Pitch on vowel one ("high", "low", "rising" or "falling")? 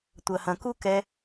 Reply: low